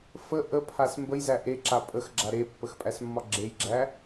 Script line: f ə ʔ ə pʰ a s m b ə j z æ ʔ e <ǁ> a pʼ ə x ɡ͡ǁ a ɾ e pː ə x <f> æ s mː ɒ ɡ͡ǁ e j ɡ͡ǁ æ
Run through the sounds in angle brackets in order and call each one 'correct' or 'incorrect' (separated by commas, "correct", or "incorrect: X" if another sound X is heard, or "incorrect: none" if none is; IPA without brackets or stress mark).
correct, incorrect: pʼ